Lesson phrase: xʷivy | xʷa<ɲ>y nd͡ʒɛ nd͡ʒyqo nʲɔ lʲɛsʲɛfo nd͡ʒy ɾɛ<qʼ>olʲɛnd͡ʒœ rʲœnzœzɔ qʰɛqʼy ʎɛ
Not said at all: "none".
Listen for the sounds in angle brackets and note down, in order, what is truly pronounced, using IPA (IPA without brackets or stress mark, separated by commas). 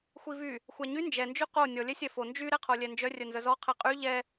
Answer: ɲ, qʰ